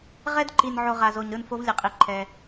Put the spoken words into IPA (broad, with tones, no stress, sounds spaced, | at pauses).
ʁ ɛ˦ d ǃ i˨ n ʕ o˨ ʁ a˨ z o˨ ɲ ɾ ɯ˦˨ n f o˦ v lʲ e˨ qʼ i˨ ǃʰ ɛ˦